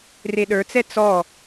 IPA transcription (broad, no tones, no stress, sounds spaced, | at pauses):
r e ɗ ə˞ t͡s ɛ t͡s ɔ